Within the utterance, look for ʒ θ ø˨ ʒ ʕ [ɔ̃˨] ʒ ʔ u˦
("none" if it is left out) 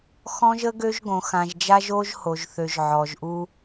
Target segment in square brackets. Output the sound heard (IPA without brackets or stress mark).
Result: ɔ˨